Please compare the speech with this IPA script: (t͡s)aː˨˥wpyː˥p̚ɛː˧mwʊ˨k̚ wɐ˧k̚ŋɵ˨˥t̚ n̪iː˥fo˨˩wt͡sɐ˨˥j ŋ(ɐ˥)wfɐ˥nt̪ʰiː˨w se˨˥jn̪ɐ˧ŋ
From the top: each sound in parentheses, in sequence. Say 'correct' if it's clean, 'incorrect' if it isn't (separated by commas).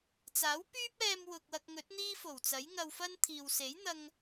correct, incorrect